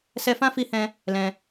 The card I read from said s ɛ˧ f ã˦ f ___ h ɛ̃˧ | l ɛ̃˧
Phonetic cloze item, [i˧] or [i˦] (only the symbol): i˧